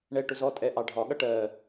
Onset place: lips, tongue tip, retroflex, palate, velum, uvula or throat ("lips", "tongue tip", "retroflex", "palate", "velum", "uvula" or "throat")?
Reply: retroflex